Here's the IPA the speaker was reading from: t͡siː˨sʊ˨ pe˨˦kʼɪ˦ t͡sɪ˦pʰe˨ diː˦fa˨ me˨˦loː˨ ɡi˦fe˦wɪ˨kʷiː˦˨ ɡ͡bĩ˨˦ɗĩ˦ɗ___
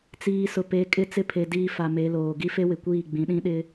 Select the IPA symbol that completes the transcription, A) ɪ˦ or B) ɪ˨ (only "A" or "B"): A